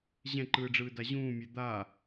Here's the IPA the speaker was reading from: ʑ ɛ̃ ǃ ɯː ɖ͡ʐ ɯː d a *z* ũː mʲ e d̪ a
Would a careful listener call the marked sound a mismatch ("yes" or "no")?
yes